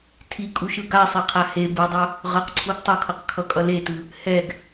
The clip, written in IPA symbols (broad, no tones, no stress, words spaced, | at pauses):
tʰikʼuʃɯ ɡasˤeqʰa he bɯdˤo | ʁʌqǀʰuɡ tˤʌkʰʌqkʰʌkʼʌ letɯ | hɛɡ